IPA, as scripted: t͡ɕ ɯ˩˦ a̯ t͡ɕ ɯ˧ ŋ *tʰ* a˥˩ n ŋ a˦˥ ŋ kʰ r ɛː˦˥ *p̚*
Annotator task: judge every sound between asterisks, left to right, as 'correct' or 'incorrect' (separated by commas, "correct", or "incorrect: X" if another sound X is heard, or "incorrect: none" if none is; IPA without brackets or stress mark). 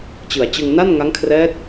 incorrect: n, incorrect: t̚